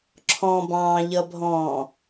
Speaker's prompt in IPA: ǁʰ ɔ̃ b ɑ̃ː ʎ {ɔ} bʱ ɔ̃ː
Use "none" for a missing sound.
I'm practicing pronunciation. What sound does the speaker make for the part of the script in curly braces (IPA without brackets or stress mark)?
ʌ